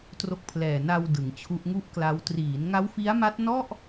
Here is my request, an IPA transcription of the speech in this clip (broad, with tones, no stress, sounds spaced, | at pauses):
t r o˦˥ k̚ pʰ l ɛː˨˩ n a˧ w d ɯ˩˦ ŋ t͡ɕʰ u˦˥ ʔ ŋ u˥˩ ʔ k l a˦˥ w t r iː˩˦ n ŋ a˦˥ w f i˦˥ a̯ m a˦˥ t̚ n ɔ˥˩ ʔ